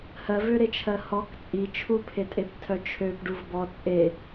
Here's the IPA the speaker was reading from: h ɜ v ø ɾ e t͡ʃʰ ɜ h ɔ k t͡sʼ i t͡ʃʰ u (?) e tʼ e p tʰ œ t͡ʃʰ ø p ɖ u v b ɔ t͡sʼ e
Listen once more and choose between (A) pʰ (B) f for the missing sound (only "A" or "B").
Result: A